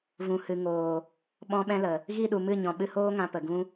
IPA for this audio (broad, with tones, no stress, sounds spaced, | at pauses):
v ũ˨ h ɨ˨ ŋ oː˨ | ɓ ɔ̃˦ ɓ ɛ̃˦ l ə˨ | ɣ i˦˨ ɗ u˨ m ɨ˦˨ ɲ ɔ̃˨ ɓ ɨ˧ h oː˦ ŋ ã˧ p ə˨ ɡ ũ˦